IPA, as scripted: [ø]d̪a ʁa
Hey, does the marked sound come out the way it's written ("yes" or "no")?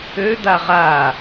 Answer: yes